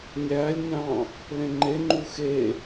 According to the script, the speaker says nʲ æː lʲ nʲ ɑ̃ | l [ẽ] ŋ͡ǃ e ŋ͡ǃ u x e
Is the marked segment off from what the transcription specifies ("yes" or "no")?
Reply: no